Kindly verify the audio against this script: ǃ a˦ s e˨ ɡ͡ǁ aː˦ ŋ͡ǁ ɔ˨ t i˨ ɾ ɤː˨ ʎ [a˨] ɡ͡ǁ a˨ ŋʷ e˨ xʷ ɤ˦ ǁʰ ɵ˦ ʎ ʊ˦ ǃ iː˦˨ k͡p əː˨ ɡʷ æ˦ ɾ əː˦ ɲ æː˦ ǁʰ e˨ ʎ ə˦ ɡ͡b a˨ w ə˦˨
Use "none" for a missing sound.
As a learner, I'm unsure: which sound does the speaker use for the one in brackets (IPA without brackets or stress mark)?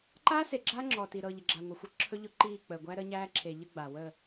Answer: ə˨